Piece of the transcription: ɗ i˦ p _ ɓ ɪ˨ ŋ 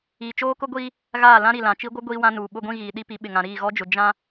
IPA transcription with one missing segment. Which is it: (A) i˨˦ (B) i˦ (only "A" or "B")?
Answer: A